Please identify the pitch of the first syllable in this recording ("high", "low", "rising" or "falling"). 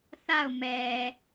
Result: falling